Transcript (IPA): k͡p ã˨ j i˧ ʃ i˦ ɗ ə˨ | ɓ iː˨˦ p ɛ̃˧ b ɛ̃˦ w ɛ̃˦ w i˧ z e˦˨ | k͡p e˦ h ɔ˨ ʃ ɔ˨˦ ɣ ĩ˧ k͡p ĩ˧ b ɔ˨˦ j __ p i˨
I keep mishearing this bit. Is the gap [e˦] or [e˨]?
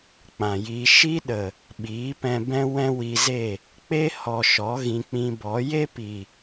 e˦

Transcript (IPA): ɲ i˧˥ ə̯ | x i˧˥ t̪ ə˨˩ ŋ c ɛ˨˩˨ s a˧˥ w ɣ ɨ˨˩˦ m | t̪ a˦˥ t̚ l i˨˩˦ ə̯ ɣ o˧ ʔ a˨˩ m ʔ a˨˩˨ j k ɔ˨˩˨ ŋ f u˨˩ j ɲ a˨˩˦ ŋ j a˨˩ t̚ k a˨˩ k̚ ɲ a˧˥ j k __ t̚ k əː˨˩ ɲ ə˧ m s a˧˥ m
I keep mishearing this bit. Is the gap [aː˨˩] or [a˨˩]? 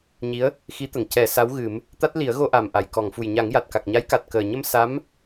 a˨˩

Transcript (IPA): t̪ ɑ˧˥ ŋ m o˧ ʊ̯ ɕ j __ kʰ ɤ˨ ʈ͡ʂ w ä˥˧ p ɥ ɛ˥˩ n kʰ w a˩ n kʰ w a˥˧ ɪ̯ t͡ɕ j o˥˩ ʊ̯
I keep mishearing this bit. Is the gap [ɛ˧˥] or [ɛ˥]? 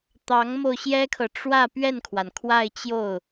ɛ˥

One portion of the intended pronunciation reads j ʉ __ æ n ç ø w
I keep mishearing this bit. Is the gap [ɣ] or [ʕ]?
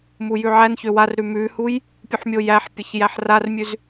ʕ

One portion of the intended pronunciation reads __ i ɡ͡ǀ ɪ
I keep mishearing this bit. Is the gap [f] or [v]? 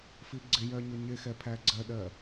f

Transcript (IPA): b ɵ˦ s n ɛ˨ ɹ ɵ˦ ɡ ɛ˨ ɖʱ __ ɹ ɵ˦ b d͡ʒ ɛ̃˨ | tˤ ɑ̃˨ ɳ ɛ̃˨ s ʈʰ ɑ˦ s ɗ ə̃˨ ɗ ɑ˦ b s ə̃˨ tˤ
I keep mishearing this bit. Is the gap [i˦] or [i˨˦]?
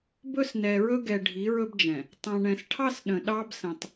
i˨˦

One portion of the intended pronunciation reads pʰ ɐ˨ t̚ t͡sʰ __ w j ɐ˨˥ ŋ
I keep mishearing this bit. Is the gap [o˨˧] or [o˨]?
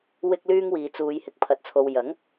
o˨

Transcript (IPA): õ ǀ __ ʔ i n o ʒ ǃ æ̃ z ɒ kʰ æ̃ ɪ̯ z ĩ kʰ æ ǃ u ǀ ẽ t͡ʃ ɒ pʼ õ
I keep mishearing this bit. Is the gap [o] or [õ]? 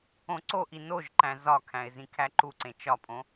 o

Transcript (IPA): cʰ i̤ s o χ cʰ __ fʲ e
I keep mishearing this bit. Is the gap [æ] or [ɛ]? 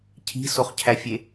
æ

